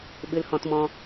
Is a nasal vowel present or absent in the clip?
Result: present